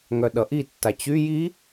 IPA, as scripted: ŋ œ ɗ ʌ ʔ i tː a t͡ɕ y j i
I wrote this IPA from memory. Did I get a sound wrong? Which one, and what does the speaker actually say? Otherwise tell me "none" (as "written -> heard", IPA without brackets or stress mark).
none